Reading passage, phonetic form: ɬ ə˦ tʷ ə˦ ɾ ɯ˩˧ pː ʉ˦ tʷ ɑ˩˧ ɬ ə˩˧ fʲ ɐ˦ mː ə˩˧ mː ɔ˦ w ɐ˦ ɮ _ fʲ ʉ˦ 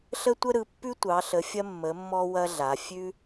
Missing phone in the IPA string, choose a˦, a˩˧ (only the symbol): a˩˧